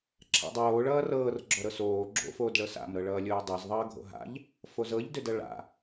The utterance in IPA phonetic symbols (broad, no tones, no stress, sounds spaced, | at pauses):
ǁʰ a̰ dˤ oː ɭ ʌː r ɤː r ɡ͡ǁ ɔ ɾ ɤ s oː ɡ͡ǁ o̰ f oː d ɭ ɤ s a̰ m ɾ ɤ ɭ ʌː lʲ oː dˤ ɤ z ðˤ ʌː ɡʱ o̰ ɦ a̰ ʎ | f o z ɤ ʎ d ʏ d ʌ ɭ a̰